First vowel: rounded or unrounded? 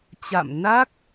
unrounded